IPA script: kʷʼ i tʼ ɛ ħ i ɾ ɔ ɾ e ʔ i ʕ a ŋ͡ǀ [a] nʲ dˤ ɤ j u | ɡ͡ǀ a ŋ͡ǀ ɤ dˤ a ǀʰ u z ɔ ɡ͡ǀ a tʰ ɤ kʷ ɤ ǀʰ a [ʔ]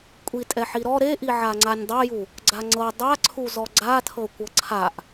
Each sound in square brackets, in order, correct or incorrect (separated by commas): correct, correct